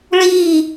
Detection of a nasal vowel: absent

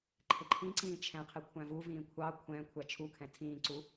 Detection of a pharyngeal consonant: absent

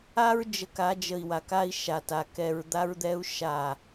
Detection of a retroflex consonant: absent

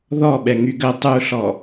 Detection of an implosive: present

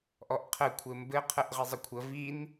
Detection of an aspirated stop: present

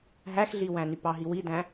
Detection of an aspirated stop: absent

